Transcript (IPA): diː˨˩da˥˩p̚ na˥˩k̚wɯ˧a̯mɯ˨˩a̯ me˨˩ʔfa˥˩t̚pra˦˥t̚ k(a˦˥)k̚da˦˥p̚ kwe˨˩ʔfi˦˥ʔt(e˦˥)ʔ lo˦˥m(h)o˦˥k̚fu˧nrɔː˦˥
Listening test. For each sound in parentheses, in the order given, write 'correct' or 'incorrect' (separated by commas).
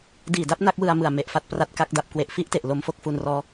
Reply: correct, incorrect, incorrect